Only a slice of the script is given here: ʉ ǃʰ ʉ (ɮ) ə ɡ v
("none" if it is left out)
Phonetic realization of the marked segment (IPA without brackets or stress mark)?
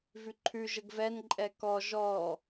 ʒ